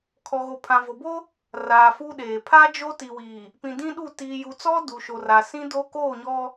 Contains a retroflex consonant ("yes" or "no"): no